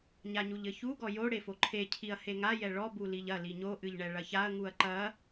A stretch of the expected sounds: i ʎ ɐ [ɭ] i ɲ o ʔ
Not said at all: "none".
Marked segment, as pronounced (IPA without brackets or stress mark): l